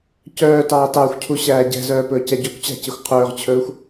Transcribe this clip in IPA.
c œː t ɑː t ɑ xʷ cʰ u ɕ æː ɟ ɛ̤ z œː p ɵː c ɛ ɟ ɵ kʷ t͡ɕ æ̤ c e xʷ qʰ ɵː ʁ t͡ɕʰ ɵː xʷ

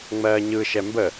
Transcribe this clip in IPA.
ŋ͡m ɜː ɲ ɯ ʃ ɛ m b ə

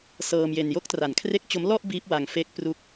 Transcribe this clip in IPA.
s ɤː˧ m j e˧ n j o˦˥ k̚ t r a˨˩ n kʰ r e˦˥ k̚ t͡ɕ o˦˥ m l ɔ˥˩ ʔ b iː˦˥ p̚ w a˧ ŋ f e˦˥ k̚ p r u˥˩ k̚

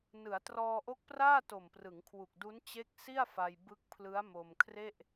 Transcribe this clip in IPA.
n ɯ˩˦ a̯ t r ɔː˧ ʔ o˦˥ k̚ p r aː˥˩ t o˨˩ m p r ɯ˩˦ ŋ kʰ w u˨˩ k̚ d u˦˥ n t͡ɕ e˦˥ k̚ s i˥˩ a̯ f a˧ j b ɯ˦˥ k̚ pʰ l ɯ˦˥ a̯ m o˧ m kʰ r e˥˩ ʔ

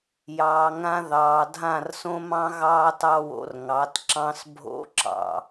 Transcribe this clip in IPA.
j ɑː˨ ŋ ã˧ ð ɑː˨ dʱ ã˦˨ r s õ˦ m ɑ̃˦ ɣ ɑː˦ t ɑ˦ w o̰˧ r ŋ ɑ˨˦ t ǁ ɑ̃˦ s bʱ o̰˦ ǁ ɑ̰˨

